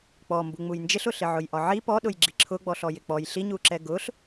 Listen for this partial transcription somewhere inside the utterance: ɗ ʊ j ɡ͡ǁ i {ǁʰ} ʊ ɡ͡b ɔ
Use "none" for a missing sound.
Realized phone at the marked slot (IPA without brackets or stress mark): ǁʰ